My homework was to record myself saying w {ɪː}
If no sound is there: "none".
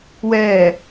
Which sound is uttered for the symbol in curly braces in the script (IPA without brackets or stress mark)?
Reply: ɛː